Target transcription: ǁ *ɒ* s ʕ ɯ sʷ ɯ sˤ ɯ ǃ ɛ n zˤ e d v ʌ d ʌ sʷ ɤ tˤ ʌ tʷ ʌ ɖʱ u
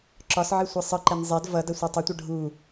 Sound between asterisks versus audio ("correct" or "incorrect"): correct